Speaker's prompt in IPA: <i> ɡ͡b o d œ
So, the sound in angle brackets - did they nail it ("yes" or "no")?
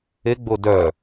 no